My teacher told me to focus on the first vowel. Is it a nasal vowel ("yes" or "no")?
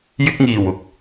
no